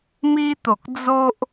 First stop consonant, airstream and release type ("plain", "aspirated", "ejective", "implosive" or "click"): plain